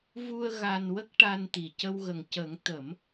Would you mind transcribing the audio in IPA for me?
vu˧ə̯ ɣa˧nwə˦˥k̚ʈa˧nt̪i˨˩ cə˧wɣə˨˩ŋcə˨˩˦ŋ t̪ə˨˩˦m

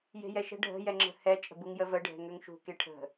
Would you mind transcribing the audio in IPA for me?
je̤jɛʃə̤ ɖʱə̤ jɛŋ͡ǁə̤hɛ t͡ʃʼə̤buŋjə və ɖʱɛ̤ŋøŋʃṳ keʈʰə̤

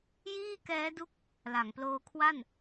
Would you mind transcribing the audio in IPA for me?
jiː˥˩kɛː˦˥du˦˥k̚ | la˩˦ŋploː˦˥kʰwa˥˩n

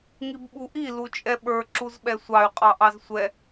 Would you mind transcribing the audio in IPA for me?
ŋibɓuʔi lut͡ʃʼɛɓə˞ ǁuzɓɛsʷɑy̯ qʼɑʔɑzsʷɛ

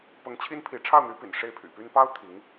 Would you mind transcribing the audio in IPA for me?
pɤ˧˥ŋ t͡ɕʰi˥npʰi˧˥ ʈ͡ʂʰɑ˥˩ʊ̯n̪y˧˥pḭ˨˩n ʂe˥˩ɪ̯pʰy̰˨˩py˥n pɑ˥ʊ̯ t̪ʰi˧˥ŋ

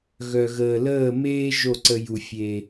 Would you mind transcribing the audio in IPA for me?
ɣœ˨ ɣəː˨ləː˦˨meː˦ ʒo˦˨ǀə˧ ju˨fʲe˨

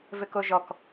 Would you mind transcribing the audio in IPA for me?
vɘkoʒɔk

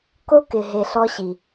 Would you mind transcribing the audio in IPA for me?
ko˦kɪ˨ɦe˨ ɬɔ˦ɕi˨

